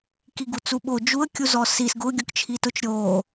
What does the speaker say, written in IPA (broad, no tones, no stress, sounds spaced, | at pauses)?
k i ɡ u t͡s u ɓ o d͡ʒ u ə̯ kʲ u z ɔ s i s ɡ ʊ ɡʲ ʊ k t͡ʃʰ i t ʊ t͡ʃ ɾʲ o